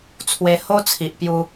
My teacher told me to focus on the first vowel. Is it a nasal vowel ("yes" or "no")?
no